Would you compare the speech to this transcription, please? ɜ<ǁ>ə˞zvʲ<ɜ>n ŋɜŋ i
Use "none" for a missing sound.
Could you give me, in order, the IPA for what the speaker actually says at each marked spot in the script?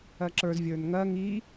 ǁ, ə˞

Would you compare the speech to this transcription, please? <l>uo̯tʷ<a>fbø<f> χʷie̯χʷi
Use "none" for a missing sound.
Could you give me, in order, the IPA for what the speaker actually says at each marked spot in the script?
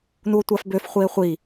n, a, f

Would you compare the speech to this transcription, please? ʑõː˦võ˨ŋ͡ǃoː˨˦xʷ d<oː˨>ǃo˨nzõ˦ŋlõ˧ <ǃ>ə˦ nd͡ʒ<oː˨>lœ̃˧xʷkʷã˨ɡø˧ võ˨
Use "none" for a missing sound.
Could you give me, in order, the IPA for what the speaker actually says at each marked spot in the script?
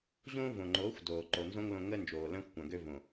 oː˨, ŋ, oː˨

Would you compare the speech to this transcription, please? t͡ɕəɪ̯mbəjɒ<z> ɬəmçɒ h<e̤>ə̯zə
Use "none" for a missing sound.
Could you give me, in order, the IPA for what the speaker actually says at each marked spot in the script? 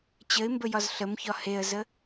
z, e

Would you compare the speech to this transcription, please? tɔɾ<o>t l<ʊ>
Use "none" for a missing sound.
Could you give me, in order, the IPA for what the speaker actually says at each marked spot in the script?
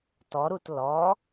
u, ɔ

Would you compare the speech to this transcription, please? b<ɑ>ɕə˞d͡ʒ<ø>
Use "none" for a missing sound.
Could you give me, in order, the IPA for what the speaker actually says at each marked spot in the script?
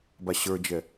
a, ɛ

